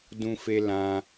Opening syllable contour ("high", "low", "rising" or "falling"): high